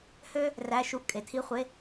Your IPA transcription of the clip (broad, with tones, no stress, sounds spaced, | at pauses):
h ø˥ | r æ˧˥˧ ʃ u˧˥˧ ʔ kʼ e˩˥ tʰ i˧˥˧ χʷ e˧˥˧